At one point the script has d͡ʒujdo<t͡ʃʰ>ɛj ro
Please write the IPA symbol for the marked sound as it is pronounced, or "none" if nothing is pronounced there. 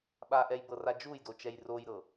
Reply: t͡ʃ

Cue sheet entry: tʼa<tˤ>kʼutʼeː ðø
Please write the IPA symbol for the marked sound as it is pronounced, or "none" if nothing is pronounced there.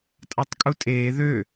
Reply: tˤ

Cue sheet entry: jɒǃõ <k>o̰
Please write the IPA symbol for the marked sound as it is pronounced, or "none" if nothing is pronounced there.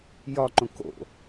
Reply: k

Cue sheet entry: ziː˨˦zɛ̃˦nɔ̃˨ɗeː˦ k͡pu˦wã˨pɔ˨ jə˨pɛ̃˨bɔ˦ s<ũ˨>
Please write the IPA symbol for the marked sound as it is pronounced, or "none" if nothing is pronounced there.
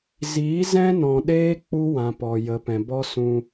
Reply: ũ˧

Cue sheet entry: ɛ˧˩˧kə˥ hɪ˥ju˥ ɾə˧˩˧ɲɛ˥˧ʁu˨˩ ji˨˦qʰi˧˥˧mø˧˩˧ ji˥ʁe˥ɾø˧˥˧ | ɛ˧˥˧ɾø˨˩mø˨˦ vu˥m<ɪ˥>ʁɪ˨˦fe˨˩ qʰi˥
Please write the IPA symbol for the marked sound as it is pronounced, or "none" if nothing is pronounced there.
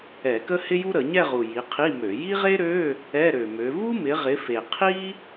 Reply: ɪ˨˦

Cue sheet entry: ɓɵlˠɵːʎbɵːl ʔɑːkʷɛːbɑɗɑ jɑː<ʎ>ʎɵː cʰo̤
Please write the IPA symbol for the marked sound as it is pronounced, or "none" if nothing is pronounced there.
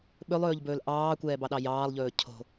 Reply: lˠ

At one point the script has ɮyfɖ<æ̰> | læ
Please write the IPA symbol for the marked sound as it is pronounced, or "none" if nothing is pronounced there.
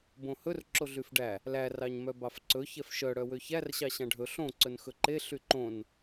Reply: æ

